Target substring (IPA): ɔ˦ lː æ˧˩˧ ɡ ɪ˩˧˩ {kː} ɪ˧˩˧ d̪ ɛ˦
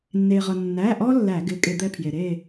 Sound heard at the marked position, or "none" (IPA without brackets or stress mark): kʼ